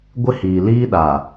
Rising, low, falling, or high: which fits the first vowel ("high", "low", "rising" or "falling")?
high